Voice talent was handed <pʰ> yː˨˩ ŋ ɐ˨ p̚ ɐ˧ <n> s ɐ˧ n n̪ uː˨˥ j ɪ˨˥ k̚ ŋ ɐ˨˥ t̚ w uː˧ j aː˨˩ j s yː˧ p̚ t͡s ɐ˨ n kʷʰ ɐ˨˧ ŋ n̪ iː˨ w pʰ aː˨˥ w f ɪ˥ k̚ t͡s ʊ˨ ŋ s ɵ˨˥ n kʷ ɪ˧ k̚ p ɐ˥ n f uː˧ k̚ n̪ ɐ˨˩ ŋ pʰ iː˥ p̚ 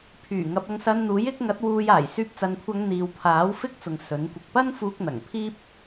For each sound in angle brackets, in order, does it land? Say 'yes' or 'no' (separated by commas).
yes, no